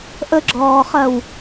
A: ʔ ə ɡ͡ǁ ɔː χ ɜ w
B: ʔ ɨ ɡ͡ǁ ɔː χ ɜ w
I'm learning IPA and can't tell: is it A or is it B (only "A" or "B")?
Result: A